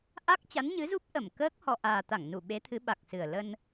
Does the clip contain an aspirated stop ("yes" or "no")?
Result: yes